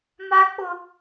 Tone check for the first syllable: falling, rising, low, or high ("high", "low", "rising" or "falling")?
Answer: high